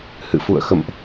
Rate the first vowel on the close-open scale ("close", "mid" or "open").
close